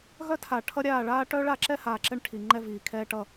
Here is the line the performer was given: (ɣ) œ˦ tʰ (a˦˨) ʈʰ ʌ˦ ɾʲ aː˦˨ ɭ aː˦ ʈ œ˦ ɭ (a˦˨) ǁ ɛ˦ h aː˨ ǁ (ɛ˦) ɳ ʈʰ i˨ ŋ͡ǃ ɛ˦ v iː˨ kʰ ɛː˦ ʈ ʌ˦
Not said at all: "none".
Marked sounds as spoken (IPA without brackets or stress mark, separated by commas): ɣ, a˨, a˦˨, ɛ˦